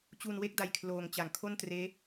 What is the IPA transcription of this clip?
t͡ɕ u˧ n w e˥˩ k̚ d a˦˥ j kʰ l oː˧ ŋ t͡ɕ a˨˩ ŋ kʰ o˥˩ n t r eː˦˥

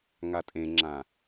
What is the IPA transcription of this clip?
ŋ a tʼ ẽ ŋ͡ǁ ã

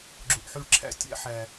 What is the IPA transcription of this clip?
ɡ͡ǁ u˨ ʔ ħ y˧ ɭ ǁʰ æ̰˧ tʲ æ̰˧ ħ æ˨

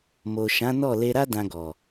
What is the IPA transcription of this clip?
m o˨ ʃ ã˨˦ n ɔ˦˨ l e˧ ɾ a˦ d ã˧ ɡ ɔ˨

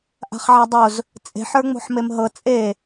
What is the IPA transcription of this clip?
ʔ a̤ χ ʕ a dˤ o z | t͡sʼ e̤ ħ ə˞ ŋ͡m o̤ ħ m e m ɦ ɤ t͡sʼ e

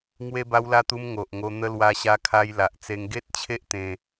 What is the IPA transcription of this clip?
ŋ w e˧ b a˧ w l a˧ t̪ u˧ m ŋ o˨ ʔ ŋ o˧ n̪ ə˧ l w a˧ ɕ a˧ kʰ a˧ j l a˨ ʔ t͡s e˧ ŋ ɡ e˦ t̚ t͡ɕʰ e˦ ʔ t̪ ẽ˧

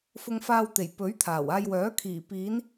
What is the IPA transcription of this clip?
f ʊ˧ ŋ f aː˧ w t̪ e˨˩ j p ɵ˨˥ ɥ t̪ʰ aː˨˩ w aː˧ j w œː˨˥ kʰ iː˨˩ p iː˨˧ n

